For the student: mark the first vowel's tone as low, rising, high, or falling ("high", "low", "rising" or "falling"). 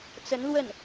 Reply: rising